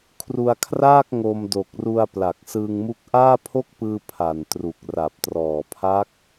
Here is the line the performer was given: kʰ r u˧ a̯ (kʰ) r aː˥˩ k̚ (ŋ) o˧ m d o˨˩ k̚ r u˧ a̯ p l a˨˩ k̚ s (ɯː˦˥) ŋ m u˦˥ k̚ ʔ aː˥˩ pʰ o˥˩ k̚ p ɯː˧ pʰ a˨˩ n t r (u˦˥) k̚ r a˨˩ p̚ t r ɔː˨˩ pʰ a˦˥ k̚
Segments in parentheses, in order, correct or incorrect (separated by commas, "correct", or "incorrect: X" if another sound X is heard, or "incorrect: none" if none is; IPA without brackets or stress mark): correct, correct, incorrect: ɯː˧, incorrect: u˨˩